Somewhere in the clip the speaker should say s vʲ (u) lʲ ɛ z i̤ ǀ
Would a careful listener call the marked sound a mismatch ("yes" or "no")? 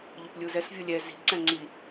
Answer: yes